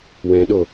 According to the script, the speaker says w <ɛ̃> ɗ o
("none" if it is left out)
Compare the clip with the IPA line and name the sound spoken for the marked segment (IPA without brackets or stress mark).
ɛ̃